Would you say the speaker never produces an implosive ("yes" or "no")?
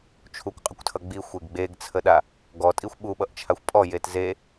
no